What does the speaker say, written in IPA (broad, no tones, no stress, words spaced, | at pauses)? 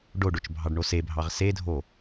ɖoɖot͡ʃ bʱɑɖɳosebʱɑʁ sedʱo